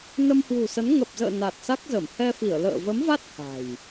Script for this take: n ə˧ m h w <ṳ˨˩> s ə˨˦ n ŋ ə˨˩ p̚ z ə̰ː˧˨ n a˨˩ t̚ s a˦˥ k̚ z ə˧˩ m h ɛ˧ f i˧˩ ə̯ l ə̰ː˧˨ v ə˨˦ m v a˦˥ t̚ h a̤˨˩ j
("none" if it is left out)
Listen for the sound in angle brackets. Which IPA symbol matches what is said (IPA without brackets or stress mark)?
ṳ˨˩